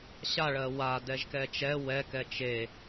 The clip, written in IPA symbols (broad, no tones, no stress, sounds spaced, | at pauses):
ɕ a ɭ ɜ w a d ɛ ʒ k ɛ t͡ʃ ɛ w ɛ k ɛ t͡ʃ e